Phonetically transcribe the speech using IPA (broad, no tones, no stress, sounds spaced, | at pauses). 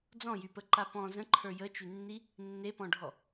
d͡z ɔ̃ j y p ə ǃ a p ɔ̃ z ə̃ ǃʰ ə˞ j ə t͡ʃ y nː i | nː e p ɔ̃ ɖʱ ɔ